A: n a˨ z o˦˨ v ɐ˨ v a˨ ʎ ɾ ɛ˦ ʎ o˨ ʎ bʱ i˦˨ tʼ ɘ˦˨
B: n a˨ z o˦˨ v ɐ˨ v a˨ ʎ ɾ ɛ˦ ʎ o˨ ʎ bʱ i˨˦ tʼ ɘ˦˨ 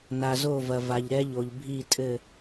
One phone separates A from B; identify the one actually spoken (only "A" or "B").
A